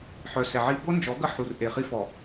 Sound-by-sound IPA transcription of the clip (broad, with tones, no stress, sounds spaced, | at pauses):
ħ œ˨ s ɛ˨ ʕ i˦ b o˦ n d͡ʒ ɔ˨˦ ɡ ə˦ ħ u˨ r ʔ e˨ χ i˦ f ɔ˨